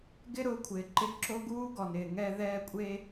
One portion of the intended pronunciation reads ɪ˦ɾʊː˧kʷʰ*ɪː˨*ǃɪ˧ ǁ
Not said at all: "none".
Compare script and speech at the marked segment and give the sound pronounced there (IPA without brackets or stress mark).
ɪː˨